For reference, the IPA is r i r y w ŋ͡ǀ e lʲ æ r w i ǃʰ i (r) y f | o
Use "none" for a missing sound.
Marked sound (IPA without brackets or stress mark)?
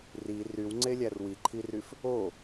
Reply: r